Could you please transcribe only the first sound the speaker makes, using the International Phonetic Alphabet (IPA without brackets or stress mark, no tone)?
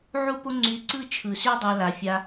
ʕ